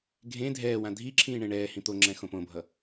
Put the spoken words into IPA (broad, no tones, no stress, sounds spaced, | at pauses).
ɡʱ ẽ dʱ ɛː w ã dʱ i ǁʰ ĩː ɳ ẽ ɳ ɛː h ĩ t̪ o ŋ͡ǁ ɛ̃ x õ p õ bʱ ʌ